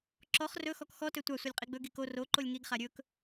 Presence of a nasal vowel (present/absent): absent